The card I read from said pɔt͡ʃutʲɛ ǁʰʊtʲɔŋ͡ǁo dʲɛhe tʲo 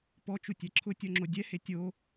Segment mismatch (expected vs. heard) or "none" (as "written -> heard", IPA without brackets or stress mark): none